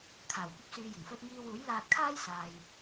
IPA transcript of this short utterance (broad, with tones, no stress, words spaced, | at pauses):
kʰaː˨˩wkʷɐ˥p̚syː˧jɪ˨˩ŋ fɵ˧t̚ŋiː˧wuː˨˥j laː˧t̚kʰaː˥j saː˨j